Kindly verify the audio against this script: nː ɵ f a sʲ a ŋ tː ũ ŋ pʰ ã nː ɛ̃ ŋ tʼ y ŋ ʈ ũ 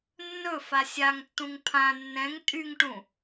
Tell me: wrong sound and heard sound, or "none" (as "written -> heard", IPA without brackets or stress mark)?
none